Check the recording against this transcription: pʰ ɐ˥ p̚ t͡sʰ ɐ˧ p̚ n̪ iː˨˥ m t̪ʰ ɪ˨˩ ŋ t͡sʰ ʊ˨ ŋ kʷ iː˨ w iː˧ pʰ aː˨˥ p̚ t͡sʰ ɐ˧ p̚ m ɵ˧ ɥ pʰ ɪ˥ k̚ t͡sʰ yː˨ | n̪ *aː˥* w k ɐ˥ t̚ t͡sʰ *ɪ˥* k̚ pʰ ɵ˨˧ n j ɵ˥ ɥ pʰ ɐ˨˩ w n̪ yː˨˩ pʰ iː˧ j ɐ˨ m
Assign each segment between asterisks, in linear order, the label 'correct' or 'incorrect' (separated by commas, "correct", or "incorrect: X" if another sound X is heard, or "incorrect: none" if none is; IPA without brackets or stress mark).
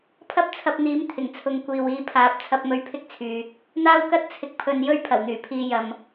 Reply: correct, incorrect: ɪ˧